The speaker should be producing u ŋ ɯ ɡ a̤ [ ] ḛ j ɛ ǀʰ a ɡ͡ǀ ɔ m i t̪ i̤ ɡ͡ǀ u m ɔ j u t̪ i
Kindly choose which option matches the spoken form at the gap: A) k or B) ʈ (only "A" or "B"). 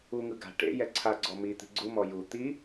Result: B